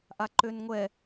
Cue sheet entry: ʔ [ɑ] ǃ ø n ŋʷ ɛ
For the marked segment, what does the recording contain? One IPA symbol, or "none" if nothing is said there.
a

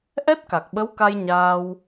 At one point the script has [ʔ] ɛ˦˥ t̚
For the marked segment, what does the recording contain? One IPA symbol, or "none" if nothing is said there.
ʔ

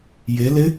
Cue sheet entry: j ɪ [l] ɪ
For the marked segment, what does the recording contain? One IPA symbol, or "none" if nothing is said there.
l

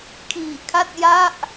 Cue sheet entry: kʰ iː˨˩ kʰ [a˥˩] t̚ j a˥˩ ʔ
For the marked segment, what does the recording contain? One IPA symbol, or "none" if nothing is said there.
a˥˩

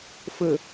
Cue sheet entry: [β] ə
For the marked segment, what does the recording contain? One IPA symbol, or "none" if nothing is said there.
f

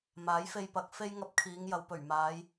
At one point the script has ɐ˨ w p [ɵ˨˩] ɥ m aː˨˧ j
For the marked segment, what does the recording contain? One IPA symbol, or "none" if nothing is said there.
ɵ˨˩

